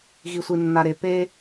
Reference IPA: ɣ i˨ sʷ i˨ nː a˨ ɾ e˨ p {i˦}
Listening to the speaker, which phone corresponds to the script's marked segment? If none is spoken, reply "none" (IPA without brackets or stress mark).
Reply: e˦